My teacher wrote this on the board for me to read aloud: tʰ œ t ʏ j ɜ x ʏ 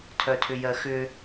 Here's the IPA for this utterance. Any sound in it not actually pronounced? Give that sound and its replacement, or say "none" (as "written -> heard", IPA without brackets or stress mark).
t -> tʰ